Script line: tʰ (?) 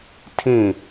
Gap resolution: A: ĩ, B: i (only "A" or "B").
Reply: A